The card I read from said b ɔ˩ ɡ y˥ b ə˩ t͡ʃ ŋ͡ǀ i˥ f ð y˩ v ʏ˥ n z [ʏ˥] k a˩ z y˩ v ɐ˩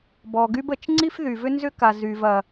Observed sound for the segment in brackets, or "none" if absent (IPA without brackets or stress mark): ʏ˥